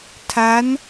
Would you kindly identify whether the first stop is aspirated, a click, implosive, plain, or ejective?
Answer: aspirated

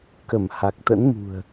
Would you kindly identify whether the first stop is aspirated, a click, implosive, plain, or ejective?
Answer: plain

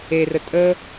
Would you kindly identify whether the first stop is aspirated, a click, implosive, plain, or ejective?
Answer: ejective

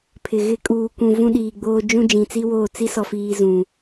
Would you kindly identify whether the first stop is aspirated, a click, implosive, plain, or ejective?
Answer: aspirated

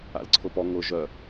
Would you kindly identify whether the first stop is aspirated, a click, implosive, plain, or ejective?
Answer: click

